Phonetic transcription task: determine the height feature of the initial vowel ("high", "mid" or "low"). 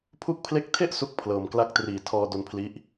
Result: high